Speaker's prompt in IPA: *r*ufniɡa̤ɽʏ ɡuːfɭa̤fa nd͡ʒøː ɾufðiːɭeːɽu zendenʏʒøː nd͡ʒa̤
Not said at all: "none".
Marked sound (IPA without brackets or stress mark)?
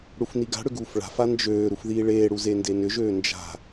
ɽ